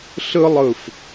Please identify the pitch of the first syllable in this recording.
high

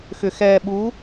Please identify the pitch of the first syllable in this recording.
low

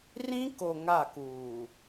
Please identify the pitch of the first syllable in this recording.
high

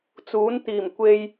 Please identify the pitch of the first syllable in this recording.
rising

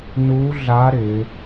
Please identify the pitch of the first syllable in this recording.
rising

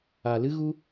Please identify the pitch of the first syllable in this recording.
low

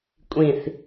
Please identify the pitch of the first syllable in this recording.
low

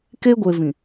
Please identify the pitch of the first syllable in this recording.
high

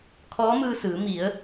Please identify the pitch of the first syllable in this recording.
rising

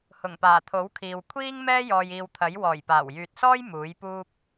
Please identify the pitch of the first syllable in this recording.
low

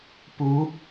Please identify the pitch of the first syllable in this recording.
rising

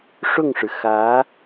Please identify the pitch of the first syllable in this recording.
falling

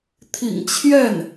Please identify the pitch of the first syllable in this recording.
low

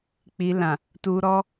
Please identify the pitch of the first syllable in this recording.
low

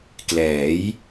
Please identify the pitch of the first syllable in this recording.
rising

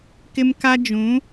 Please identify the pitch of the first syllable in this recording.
high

